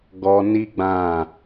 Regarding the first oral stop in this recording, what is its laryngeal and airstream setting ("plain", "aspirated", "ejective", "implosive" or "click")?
plain